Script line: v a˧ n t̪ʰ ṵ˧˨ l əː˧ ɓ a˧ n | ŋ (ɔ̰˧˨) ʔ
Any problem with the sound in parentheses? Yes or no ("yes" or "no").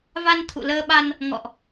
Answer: no